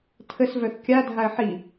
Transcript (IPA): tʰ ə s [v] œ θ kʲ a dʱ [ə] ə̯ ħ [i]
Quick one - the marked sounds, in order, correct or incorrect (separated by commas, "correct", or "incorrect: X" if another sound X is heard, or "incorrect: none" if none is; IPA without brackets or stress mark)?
correct, incorrect: a, correct